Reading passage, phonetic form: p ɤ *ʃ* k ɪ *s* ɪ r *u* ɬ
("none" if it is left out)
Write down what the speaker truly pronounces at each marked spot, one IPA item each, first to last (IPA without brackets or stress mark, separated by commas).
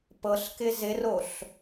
ɬ, z, o